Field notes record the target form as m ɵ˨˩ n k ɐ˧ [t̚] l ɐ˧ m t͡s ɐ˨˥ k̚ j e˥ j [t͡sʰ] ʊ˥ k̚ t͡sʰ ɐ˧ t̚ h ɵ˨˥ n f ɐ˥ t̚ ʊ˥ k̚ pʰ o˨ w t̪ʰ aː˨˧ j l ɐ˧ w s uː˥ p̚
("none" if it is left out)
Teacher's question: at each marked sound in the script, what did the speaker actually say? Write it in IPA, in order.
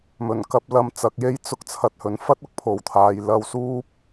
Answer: p̚, t͡s

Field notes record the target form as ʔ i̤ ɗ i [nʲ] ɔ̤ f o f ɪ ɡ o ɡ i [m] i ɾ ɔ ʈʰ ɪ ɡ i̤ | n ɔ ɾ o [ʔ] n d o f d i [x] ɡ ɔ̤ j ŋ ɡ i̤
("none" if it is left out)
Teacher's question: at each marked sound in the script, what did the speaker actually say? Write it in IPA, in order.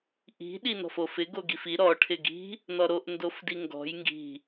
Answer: n, f, ʔ, ŋ

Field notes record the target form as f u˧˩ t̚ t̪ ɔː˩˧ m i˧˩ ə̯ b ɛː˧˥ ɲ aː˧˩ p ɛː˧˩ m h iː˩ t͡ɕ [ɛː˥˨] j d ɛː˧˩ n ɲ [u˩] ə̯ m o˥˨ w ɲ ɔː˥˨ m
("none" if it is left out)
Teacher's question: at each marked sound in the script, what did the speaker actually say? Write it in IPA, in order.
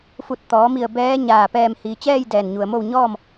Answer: ɛː˥˨, u˩

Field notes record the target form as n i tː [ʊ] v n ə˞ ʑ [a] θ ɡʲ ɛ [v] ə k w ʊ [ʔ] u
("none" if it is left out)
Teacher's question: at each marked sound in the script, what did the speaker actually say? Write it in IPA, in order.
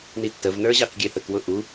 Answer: ə, ɑ, θ, ʔ

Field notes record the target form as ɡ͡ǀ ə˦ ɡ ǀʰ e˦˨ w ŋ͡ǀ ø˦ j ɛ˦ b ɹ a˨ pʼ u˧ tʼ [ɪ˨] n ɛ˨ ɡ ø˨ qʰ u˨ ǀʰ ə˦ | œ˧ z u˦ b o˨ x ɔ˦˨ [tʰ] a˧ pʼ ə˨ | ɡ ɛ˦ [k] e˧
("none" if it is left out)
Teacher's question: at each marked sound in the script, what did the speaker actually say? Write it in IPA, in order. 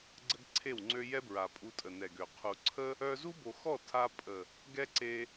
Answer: ə˨, tʰ, ǀ

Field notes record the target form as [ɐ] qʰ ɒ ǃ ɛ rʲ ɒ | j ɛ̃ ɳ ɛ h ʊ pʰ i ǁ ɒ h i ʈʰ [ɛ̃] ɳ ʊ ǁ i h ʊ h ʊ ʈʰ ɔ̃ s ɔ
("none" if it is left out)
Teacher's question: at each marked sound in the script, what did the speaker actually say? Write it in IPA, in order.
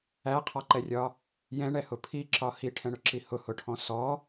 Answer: æ, ɛ̃

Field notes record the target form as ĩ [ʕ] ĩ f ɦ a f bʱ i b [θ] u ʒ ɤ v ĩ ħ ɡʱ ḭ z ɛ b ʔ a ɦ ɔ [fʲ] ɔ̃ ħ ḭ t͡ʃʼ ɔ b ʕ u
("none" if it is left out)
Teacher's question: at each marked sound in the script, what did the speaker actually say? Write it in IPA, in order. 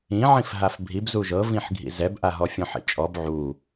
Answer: ʕ, z, fʲ

